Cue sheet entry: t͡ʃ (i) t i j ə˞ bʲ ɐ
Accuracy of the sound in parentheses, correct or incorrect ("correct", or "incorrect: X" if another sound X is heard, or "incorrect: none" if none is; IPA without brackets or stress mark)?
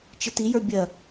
incorrect: ɪ